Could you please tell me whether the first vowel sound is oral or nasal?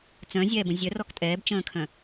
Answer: nasal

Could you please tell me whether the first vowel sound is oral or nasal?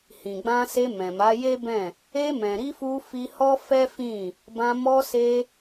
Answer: nasal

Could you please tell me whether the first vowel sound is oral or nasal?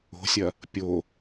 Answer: oral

